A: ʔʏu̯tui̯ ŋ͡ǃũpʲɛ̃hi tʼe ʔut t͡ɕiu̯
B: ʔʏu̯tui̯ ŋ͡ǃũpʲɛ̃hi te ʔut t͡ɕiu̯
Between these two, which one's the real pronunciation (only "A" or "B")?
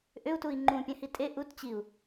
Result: A